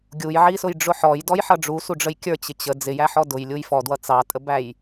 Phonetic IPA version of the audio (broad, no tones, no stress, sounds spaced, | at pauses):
ɡʲ u j ʕ i s ʊ j ɖ͡ʐ ʊ ħ ɔ j d ɔ j ħ ʌ ɖ͡ʐ u s u ɖ͡ʐ ə j kʲ ə˞ t͡ɕ ɪ t͡ɕ ə d͡z ɪ j æ ħ ɔ d ʊ j lʲ u j f ɔ d w ʌ t͡s ɑ tʼ ə b æ j